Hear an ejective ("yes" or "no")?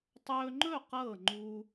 no